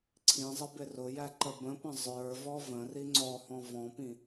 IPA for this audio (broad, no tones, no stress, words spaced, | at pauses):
ǀʰĩzˤɪ bɪrʊjæ ǃəbə̃pə̃ zˤə˞vɔ və̃ riŋ͡ǀɔhɔ̃ vɔ̃pĩ